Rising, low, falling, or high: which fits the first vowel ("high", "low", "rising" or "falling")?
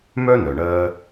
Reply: high